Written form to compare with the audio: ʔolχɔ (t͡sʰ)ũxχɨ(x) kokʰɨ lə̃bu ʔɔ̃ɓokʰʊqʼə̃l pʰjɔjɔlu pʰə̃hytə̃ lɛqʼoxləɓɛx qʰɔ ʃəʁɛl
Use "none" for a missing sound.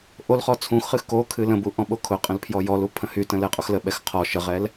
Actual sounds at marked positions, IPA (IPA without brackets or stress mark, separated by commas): t͡sʰ, x